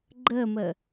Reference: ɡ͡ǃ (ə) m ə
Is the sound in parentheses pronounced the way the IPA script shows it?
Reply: yes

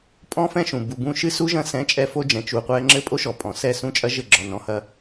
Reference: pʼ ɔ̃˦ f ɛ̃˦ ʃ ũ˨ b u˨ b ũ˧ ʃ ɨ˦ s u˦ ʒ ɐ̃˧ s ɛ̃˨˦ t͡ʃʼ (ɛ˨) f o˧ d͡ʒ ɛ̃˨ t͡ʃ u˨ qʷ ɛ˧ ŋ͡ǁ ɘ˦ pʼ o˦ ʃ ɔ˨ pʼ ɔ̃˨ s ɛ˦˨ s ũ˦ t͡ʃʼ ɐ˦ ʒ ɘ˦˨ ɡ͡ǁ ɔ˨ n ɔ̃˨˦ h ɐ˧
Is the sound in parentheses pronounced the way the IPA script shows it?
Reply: no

